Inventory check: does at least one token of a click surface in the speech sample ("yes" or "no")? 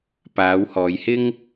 no